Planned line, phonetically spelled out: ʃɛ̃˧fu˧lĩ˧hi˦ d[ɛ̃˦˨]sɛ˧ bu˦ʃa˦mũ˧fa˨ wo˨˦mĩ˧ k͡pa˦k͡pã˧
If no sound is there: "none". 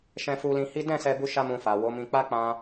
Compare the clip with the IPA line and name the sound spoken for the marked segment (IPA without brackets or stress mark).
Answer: ɛ̃˦˨